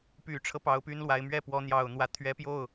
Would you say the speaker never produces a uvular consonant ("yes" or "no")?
yes